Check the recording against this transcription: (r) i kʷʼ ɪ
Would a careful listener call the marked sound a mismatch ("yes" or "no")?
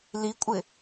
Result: yes